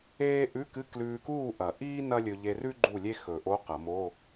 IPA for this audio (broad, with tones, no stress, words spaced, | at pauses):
eː˥ ʔʉ˧˥˧kɨ˧˥˧ klʉː˧kuː˥˨ ʔɐ˨˩˦ ʔiː˥ nɐ˥lʲɵ˧ ʎe˧rʉ˥ ɡ͡ǃu˥˨lʲe˥ xɵ˨˩˦ʔo˧˥˧ qɐ˨˩˦mo˧˥˧